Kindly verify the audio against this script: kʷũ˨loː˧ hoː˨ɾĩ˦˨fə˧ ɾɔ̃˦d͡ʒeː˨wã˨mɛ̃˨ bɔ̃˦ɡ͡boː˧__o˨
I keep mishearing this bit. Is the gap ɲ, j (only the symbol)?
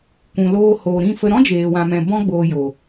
j